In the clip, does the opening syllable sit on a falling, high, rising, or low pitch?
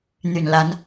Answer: low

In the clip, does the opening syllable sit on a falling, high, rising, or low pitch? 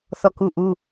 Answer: falling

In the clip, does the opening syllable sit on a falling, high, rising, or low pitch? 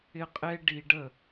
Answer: high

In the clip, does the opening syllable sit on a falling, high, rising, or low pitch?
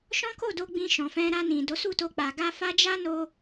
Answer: high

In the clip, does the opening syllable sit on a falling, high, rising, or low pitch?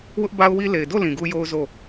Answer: high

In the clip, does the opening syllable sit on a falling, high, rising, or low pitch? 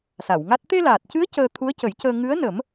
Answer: low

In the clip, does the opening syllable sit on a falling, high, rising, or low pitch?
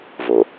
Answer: low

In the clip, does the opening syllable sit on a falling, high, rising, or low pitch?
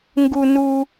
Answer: high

